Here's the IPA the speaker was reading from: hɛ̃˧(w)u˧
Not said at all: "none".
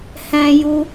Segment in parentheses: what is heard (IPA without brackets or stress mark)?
j